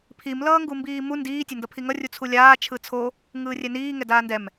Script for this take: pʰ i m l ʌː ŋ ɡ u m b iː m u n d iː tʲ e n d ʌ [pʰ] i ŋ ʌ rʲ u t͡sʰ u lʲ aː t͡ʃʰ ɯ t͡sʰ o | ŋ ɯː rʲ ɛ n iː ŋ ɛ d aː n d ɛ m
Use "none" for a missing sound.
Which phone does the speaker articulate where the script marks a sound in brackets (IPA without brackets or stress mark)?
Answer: pʰ